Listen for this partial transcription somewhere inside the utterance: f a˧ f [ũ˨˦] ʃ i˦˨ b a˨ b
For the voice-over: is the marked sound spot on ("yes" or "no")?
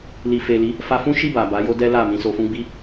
no